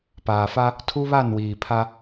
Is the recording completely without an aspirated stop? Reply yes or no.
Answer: no